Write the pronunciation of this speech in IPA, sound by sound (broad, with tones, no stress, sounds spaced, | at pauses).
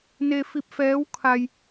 n e˧ f i˧ p̚ f ɛː˧˥ w kʰ a˧ j